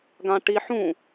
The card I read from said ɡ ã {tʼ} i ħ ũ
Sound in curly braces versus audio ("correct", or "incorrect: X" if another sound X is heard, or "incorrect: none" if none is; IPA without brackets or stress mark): incorrect: ʈ